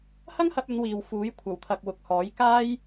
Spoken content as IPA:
h ɐ˥ ŋ h ɐ˧ p̚ ɵ˨˧ n w iː˨ w f uː˨˥ j kʷʰ ɐ˨˩ w t̪ʰ ɐ˨ k̚ w ʊ˨ k̚ h ɔː˨˥ j k aː˥ j

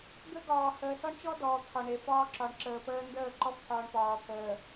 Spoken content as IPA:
ɡ ə˦ ɡ ɒː˨ h əː˨ s ɔ˦ ɳ t͡ʃ ɔ˦ d ɔː˨ t̪ʰ ɒ˨ ɳ e˨ f ɒː˦ ǁ ɒ˨ ɳ ǁ əː˨ p əː˦ n d əː˦˨ ǃ ɔ˦ f ħ ɒː˨ ɳ p ɒː˨ t̪ʰ əː˨

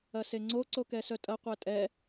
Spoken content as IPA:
ɐ s e ŋ͡ǀ o ǀ o k ɛ s œ tʼ ɐ qʷ æ tʼ ɛ

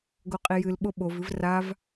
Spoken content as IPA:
ɡ o qʼ i j ɨ l ɓ o ɓ o v ɨ v r a v

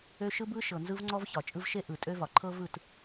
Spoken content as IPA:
ø˦ ʃ ɯ˦ b ɯ˦ ʃ ɤ˨ n z ɯ˦ v ŋ͡ǀ ɔ˦ v ç ɒ˨ t͡ʃʼ ɯ˦ v ʃ e˦ ʔ ɯ˨ tʼ ø˦ v ɒ˨ ǃʰ ɤ˦ v ɯ˦˨ t

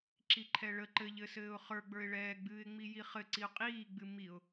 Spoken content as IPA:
ǁ i ǃʰ ɛ ɭ ə ǃ ɘ ʎ ɘ s ɘː ʊ̯ χ ə˞ ɡ͡b ə˞ ɪ̯ ɭ ɛː ɡ͡b ɨː ɪ̯ ŋ͡m i j i χ ɘ ǀ i ʊ̯ qʼ iː ɡ͡b ɨ m i ʊ̯

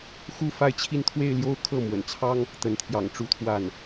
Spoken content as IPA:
x u˥˧ f a˥˧ ɪ̯ t͡ɕʰ i˥˧ n t̪ʰ w e˥˧ ɪ̯ l j o˥˧ ʊ̯ kʰ ɤ˥˩ m w ə̰˨˩ n t͡sʰ ɑ˥ ŋ | t̪ ə˧˥ n t̪ʰ j ɑ̰˨˩ ŋ ʈ͡ʂ u˥ t̪ʰ w a˥˩ n

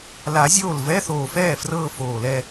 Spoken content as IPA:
l a˨˩˦ zʲ oː˥˩ l v ɛ˧˥˧ θ oː˨˩ f ɛː˥˩ f r ɤː˥˧ f oː˨˩ l ɛ˥˧

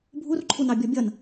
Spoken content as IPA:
bʱ u r ǃʰ u n ɑ bʲ ɔ bʲ ʌ n

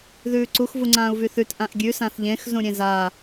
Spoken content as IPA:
ð ʉː ǀ u x v u ŋ͡ǀ ãː u̯ v y θ ʉ t ʔ ã ʔ ɡʲ ʉ s ã θ ʎ ẽ x z ũ ɾʲ ẽ z a

